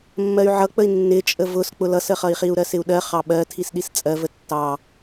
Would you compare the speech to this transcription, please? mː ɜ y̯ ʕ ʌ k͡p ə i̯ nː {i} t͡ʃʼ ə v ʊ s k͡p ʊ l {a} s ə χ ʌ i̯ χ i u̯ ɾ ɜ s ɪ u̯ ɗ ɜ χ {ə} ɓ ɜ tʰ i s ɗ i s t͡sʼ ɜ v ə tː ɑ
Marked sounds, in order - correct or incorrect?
incorrect: ɪ, incorrect: ʌ, incorrect: ɑ

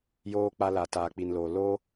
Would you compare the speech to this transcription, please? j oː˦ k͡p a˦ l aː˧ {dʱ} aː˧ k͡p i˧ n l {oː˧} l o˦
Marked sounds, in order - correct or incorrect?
incorrect: t, correct

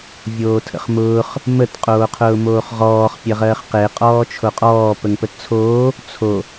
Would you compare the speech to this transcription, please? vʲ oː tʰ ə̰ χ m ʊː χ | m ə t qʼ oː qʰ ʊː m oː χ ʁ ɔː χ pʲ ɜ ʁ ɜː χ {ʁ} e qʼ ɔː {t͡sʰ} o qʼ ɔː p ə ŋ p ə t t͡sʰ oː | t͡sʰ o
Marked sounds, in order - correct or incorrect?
incorrect: q, incorrect: t͡ʃʰ

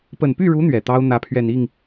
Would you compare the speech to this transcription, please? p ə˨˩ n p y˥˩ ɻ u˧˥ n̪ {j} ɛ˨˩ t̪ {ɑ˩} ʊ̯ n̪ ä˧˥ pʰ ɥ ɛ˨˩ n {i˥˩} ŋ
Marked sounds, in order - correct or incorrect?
incorrect: ɥ, incorrect: ɑ˥, correct

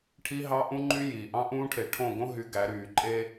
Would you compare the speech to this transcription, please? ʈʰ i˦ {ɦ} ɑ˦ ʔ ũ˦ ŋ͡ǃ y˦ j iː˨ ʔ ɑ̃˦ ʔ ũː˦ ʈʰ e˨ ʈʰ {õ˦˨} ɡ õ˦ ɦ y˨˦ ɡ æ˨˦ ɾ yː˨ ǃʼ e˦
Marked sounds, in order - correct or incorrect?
correct, correct

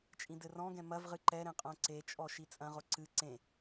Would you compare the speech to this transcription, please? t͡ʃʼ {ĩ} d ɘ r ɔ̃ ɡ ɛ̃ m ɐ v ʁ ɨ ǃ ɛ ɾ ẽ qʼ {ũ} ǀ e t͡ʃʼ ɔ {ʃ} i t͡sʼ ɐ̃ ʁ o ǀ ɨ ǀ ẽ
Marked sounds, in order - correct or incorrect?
correct, incorrect: õ, correct

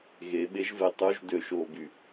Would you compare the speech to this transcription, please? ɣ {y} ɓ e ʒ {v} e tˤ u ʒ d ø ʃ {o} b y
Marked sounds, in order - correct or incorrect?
incorrect: e, correct, incorrect: oː

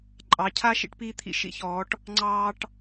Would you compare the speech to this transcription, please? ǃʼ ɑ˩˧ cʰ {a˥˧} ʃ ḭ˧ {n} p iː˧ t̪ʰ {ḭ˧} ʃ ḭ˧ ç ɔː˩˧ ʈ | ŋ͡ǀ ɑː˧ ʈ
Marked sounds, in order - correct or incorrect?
correct, incorrect: ʈ, correct

